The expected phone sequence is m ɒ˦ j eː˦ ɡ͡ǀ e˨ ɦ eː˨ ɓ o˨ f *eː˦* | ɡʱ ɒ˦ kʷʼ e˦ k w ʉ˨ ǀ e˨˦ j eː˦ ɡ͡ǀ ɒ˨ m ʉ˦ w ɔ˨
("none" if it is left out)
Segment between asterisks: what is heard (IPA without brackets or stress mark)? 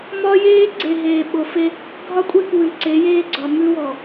e˦